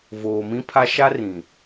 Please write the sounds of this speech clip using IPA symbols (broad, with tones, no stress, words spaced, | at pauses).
voː˨mĩ˦pʰa˦ ʃa˦rĩ˨